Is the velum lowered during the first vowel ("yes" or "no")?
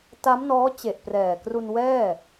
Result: no